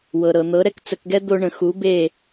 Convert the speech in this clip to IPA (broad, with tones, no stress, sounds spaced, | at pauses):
w ɤ˩ ɾ ɤ˩ n̪ ɤ˩˥ ɾ ɛ˥ k t͡s ə˧ k ɡ ɛ˥ d̪ o˧ ɳ ə̃˩ x u˩˥ b e˥˩